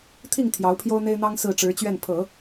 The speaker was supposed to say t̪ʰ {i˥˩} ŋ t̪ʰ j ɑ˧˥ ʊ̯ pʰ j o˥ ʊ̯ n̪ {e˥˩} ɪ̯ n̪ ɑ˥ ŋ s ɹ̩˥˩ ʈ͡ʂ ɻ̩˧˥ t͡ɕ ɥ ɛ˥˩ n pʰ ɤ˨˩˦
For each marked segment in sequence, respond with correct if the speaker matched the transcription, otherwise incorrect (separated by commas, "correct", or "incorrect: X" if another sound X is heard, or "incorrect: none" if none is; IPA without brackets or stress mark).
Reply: correct, incorrect: e˥